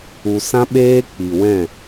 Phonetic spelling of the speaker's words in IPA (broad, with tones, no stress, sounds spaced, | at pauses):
u˧ s ã˦ ɓ eː˦ k͡p i˨ w ɛ̃˦˨